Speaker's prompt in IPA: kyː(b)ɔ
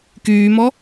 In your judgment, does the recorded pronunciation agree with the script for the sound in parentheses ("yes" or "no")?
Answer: no